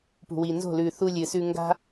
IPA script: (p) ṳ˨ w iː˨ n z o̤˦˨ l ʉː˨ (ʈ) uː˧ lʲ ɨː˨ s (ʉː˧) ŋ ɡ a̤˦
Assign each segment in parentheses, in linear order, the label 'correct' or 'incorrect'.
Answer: correct, incorrect, correct

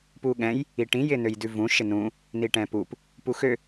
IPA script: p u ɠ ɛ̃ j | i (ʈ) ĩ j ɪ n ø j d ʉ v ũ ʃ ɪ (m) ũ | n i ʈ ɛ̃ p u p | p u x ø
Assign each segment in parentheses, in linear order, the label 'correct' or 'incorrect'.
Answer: correct, incorrect

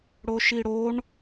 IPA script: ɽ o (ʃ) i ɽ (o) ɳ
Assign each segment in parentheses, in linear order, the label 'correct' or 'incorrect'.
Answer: correct, correct

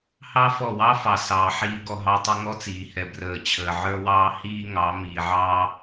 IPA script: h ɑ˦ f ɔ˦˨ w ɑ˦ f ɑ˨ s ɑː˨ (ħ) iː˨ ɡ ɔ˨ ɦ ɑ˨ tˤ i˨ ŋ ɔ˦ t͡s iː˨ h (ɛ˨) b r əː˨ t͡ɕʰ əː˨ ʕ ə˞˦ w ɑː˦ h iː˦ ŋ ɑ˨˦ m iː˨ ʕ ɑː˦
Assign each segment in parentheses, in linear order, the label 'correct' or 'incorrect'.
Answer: correct, correct

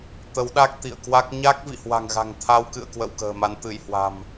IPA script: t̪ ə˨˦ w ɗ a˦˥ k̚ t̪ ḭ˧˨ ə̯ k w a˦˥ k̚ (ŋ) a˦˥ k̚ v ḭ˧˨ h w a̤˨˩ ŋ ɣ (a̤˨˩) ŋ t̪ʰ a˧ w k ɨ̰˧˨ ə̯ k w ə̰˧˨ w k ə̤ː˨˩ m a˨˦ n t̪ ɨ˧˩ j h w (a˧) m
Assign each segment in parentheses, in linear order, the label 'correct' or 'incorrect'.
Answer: incorrect, correct, incorrect

